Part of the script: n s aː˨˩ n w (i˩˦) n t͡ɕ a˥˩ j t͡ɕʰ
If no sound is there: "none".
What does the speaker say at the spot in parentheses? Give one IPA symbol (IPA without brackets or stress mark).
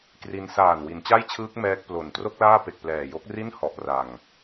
i˩˦